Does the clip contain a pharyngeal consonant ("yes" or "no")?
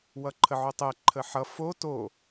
yes